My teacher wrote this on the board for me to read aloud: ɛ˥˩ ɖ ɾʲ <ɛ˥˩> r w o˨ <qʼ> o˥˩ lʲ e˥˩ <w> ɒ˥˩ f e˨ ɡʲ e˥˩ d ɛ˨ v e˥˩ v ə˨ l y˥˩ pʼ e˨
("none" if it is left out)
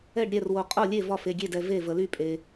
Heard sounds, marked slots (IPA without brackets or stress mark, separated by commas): ɛ˥˩, qʼ, v